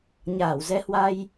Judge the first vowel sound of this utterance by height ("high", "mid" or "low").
low